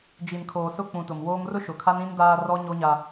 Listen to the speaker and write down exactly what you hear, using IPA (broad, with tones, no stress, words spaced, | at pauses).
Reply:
d͡ʒi˨nkʰoː˨sʊ˦˨ k͡pũ˨tʊ˨m woː˦ŋ rʊ˦ʃʊ˨kʰa˦n ĩ˦ndaː˦ rɔ˦ ɲo˦ɲa˦